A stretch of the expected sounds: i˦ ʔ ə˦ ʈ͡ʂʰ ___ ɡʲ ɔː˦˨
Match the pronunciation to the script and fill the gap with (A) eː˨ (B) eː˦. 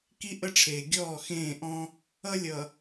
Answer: A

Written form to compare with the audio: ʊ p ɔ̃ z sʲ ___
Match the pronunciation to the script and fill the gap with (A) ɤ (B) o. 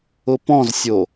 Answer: B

